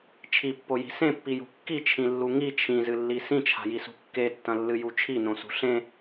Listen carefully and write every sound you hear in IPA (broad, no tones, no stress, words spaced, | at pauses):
t͡ʃʰipːoji̤ sẽpːijṳ kːit͡ʃʰĩlːu ŋi t͡ʃʰĩzɨlːi sĩt͡ʃʰa̤jisṳ kːetːɐ̃lːɨju t͡ʃʰinõsṳ ɬẽ